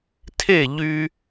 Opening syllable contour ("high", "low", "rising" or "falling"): falling